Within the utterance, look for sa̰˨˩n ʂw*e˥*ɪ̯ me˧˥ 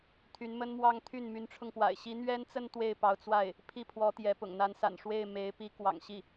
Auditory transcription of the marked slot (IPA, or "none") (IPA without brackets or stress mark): e˥˩